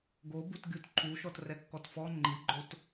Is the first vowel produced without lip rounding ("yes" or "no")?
no